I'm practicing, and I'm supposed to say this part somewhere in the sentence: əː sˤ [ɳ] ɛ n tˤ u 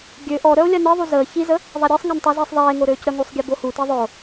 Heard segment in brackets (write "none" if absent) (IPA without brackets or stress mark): ŋ